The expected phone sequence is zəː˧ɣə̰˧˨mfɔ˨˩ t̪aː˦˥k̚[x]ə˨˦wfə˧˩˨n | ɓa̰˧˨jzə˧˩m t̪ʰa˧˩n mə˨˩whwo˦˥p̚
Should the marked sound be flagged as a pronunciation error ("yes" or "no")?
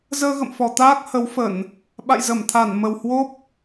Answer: yes